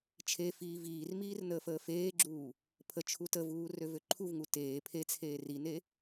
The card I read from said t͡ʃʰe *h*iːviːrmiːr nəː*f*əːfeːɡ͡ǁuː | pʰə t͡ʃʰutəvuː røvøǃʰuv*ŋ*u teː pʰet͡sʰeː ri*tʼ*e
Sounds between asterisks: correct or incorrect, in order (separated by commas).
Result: incorrect, correct, correct, incorrect